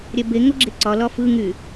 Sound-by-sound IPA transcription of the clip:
ɾʲɛbe ŋoɡ͡ǁeǀɒ lɒfɯ ŋy

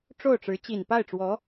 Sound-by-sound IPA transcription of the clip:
ʈ͡ʂo˥˩ʊ̯ʈ͡ʂɻ̩˧˥ t͡ɕi˨˩npa˥˩ɪ̯ʈ͡ʂwɔ˧˥

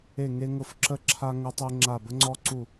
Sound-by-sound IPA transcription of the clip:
e˧˩ŋe˧ŋʊ˧˩fǁə˧ ǁʰa˧ŋʊ˧ tˤe˧ŋ͡ǁa˧˩ bə˧ŋ͡ǀɔ˧ǀu˧˩

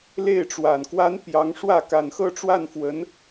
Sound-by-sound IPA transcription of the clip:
le˥˩ɪ̯ʈ͡ʂwa˨˩n kwa˥npjɑ˧˥ŋʂwä˥˩ ka˨˩nxɤ˥˧ ʈ͡ʂwa˥˩nfwə˧˥n

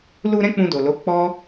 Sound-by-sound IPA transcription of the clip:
lu˧ ɾɛ̃˦k͡pũ˧do˨lo˨˦ k͡pɔ˦

